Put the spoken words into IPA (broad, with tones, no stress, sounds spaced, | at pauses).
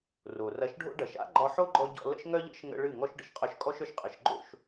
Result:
r o˨ r ɐ˧ ʃ ɖʱ o̰˦ ɖ ɐ˨ ʃ a̰˦ ɡ͡ǃ ɒ˧ ħ o˦ ɡ͡ǃ ɔ˧ ɟ ɔ̰˧ l ə̰˦ ʃ ŋ œ˦ ʎ ə̰˦ ʃ ŋ ə̰˧ ɭ ɨ˦˨ ŋ ɔ˦ ʃ ɖ ə̰˨ ʃ qʼ œ˧ ʃ kʼ ɔ˦ ʃ œ˧ ʃ qʼ ə˨ ʃ ɡ͡ǃ o̰˦˨ ʃ